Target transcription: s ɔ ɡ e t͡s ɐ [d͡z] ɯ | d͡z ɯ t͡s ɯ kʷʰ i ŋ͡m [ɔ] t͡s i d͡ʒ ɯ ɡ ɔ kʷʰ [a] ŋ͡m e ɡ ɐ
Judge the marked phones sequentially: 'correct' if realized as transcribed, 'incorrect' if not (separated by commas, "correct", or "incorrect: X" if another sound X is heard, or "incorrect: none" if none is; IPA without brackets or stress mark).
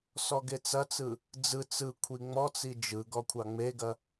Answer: incorrect: t͡s, correct, incorrect: ɑ